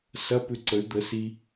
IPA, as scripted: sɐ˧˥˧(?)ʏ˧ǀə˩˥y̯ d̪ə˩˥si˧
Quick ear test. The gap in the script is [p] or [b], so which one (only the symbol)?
p